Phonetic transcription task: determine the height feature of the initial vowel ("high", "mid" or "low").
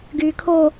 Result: high